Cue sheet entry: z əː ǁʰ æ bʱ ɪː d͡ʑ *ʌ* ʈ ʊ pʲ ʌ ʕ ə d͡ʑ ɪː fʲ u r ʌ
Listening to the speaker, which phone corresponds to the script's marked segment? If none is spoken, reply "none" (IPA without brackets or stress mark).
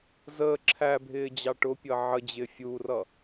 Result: ɑ